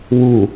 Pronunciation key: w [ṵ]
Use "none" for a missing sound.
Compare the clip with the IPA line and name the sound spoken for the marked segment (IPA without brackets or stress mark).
u